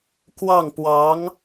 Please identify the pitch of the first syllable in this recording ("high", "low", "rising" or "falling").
falling